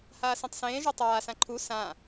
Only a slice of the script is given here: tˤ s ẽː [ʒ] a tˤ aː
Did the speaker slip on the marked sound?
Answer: no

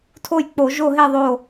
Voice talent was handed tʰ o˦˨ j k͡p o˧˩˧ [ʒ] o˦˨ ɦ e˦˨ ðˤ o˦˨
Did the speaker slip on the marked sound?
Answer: no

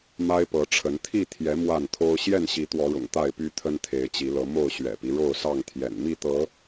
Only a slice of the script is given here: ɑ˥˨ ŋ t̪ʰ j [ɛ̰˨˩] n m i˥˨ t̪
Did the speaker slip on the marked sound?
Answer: no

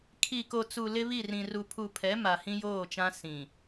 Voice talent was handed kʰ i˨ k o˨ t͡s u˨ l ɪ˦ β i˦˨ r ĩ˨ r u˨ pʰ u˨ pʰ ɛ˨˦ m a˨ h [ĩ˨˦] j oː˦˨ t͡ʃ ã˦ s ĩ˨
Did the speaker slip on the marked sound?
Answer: yes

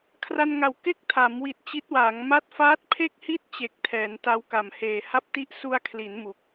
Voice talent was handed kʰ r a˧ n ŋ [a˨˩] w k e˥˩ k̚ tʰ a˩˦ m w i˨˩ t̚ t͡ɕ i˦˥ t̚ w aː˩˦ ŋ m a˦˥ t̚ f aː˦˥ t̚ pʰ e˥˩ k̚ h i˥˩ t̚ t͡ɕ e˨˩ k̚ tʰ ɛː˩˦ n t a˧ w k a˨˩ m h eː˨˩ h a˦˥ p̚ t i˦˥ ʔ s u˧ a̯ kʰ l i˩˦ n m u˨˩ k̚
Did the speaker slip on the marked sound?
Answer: no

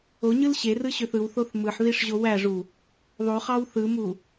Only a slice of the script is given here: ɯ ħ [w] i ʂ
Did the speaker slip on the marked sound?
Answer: yes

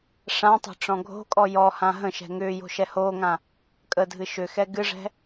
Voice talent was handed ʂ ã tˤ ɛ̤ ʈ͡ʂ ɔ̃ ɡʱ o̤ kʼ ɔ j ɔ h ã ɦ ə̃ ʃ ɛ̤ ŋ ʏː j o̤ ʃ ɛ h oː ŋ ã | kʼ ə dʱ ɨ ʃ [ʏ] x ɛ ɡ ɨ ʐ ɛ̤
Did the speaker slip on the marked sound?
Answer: no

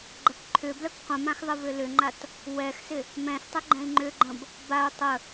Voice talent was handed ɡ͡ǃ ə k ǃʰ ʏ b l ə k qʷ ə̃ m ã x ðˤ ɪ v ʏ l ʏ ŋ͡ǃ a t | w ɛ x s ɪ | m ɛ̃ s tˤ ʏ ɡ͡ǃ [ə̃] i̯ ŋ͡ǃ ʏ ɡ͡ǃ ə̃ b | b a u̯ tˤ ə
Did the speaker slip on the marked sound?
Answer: yes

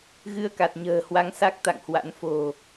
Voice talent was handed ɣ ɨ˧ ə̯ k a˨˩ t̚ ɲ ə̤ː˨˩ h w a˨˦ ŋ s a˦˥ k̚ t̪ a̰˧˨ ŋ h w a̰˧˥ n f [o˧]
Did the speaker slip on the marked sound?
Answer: yes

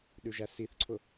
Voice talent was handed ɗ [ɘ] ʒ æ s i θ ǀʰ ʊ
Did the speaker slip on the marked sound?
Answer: yes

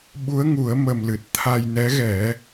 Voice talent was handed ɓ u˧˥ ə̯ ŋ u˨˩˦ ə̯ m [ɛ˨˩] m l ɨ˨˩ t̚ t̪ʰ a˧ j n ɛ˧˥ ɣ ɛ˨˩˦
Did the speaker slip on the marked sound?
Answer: yes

